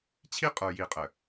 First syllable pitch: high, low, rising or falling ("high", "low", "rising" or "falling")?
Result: high